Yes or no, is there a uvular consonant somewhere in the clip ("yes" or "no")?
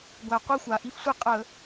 yes